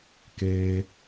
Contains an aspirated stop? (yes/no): no